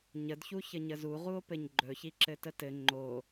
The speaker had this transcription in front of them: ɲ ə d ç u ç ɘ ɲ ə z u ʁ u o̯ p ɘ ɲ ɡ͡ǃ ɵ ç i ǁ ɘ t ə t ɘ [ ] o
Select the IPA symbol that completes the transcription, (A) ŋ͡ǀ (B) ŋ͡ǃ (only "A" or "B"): B